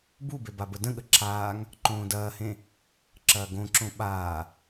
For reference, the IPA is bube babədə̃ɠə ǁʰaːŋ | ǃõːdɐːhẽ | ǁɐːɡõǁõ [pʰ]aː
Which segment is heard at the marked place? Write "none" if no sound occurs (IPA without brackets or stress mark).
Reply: ɓ